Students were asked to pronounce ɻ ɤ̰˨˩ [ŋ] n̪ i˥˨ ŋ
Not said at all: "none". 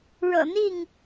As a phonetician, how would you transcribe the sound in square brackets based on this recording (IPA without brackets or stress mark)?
none